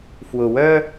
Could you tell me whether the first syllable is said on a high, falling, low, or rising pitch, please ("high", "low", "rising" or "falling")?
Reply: low